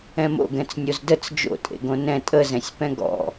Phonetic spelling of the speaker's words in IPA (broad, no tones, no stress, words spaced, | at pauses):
ɛ̃mo̰ɡɛ̃t͡s nʲozdət͡s d͡ʒo̰tʼḛɡõ nɛ̃ tʼəzɛ̃sʲpɛ̃ ɡɔ̰